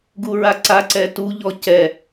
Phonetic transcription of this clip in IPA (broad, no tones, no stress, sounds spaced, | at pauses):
ɡ u ɹ a ǀ a ǀ ɛ t u ʎ ɔ c ɛ